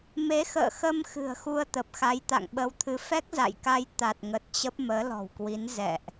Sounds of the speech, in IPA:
me˨˦xə̰ː˧˨xə˧m xɨ̤˨˩ə̯xu˧ə̯t̪ə˨˩p̚xa˨˦j t̪a̰˧˨ŋɓə˨˦wt̪ʰɨ˨˦ fɛ˦˥k̚za̰˧˨jka˧j t̪a˨˩t̚ŋə˨˩t̚ t͡ɕə˦˥p̚ məː˨˦lɔ̤˨˩wkwi˨˦n zɛ̰˧˨ʔ

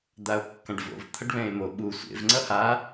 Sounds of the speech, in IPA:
d̪ao̯kːãɖvo̰v t̪ʰʌɖβɛ̃e̯mo ɓu sʷḛv ŋ͡ǀʌha

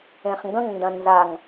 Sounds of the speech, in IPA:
ẽχŋɡə̃ŋndɐ̃ nzaŋ

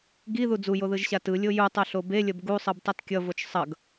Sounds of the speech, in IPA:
ɡiðu d͡zujoðɯʒɕa tɯlʲo jutˤoɬo belʲʌb ɡusˤɯbtˤʌt kʲʌvot͡ʃ sˤʌɡ

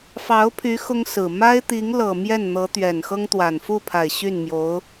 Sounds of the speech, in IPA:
fɑ˧˥ʊ̯pʰy˧˥ xʊ˥ŋsɹ̩˨˩ ma˥ɪ̯ t̪i˧˥ŋlɤ˨˩ mjɛ˥˩nn̪ɤ˧˥ t̪ɥɛ˨˩nxɤ˥ŋ t̪wa˨˩n fu˥˩pʰa˨˩ɪ̯ ɕy˥˩nmjo˧˥ʊ̯

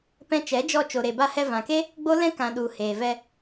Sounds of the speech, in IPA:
pɛ̃˧t͡ʃɛ˨˦d͡ʒɔ˧ t͡ʃo˨ɾe˨ba˧hɛ˧ vã˨ke˦ | ɡ͡bo˦lɛ̃˦ kã˨ ɗu˨ heː˨vɛ˧

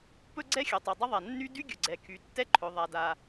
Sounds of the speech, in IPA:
pɵ˥ɡ͡ǀɛ˥xʲɵ˩tˤo˩ dˤə˥ðˤa˩nːy˥ dy˥ɡʲɵ˩ɡ͡ǀɛ˩ kʰy˩tːɛ˥ǃʰɵ˩ ðˤa˩da˩

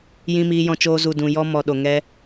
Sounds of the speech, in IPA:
jĩ˧miː˧jɔ̃˧t͡ʃoː˧ zu˨dũ˨ jɔ˧ mɔ˨ ɗo˨ŋɛ˧

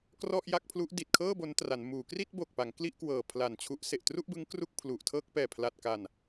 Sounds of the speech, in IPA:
krɔ˥˩ʔja˥˩k̚pʰlu˦˥ʔ di˨˩t̚kʰɤː˥˩ bo˦˥ntra˩˦nmuː˩˦ kri˥˩t̚bo˨˩k̚pa˩˦ŋ kli˥˩ʔkwɤː˨˩ pʰla˨˩nt͡ɕʰu˦˥ʔse˨˩ʔ tru˥˩ʔbɯ˦˥ŋ kru˥˩k̚pʰlu˨˩ʔtʰɤː˥˩k̚ pɛː˨˩pʰla˨˩t̚ka˨˩n

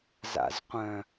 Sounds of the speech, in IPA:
za̰zqʷœ̃

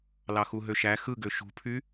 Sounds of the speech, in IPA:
lɑxuɦøʃæ xɯɡø ʃṳpʰy

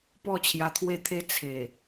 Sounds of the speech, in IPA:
pɔ˥˧t͡ɕʰja˧t̪ʰwe˥˧t̪ʰe˦ t͡sʰe˨˩

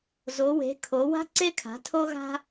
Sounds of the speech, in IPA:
zo˩˧we̤˩˧ kʰo˩˧wa̤˥ǀe˥kʰa̤˩˧ tʰo˥ɣa̤˥

